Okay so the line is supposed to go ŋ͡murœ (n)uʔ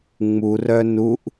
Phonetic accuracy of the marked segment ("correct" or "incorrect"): correct